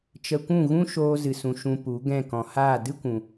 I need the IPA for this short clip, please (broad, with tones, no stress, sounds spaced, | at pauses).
t͡ʃ ə˧ kʷ ũ˦˨ ɣ ũ˦ ʃ oː˧ z ɨ˨ s ũ˨ ʃ ũ˧ p u˨˦ ɡ ɛ̃˦˨ k ɔ̃˨ h aː˦˨ d ɨ˦ kʷ ũ˧